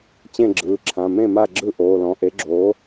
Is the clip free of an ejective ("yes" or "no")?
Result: yes